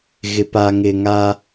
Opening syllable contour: low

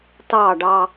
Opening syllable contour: falling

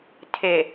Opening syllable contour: low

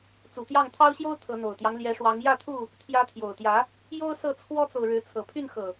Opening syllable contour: low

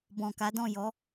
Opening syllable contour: low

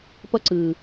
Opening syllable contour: high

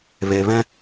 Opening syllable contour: low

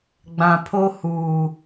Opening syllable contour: low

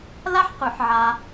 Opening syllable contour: high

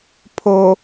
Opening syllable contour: low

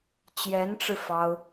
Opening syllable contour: rising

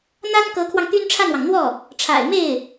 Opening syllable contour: high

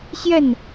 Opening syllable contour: falling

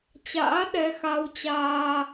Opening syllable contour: rising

